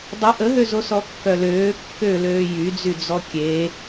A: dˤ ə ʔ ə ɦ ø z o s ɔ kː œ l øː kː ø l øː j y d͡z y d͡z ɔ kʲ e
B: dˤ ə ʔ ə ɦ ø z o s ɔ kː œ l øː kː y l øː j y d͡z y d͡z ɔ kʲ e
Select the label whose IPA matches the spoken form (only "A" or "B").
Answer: A